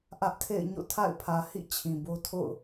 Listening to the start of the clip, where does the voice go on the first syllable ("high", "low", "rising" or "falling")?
high